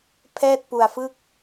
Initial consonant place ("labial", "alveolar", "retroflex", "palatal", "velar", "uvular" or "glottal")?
labial